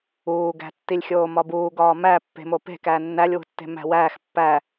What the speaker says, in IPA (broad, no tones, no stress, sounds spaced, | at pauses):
uː ɡ æ̤ tː i lʲ xʲ oː m ɒ b uː ɡ ɒː m æ pː e̤ m o p e̤ k æ nː æ lʲ w ṳ tː e̤ m æ̤ w æː x pː æ